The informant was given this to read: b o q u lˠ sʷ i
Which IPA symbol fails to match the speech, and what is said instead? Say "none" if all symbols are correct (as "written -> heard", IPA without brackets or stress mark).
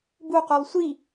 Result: o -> u